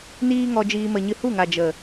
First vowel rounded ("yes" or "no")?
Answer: no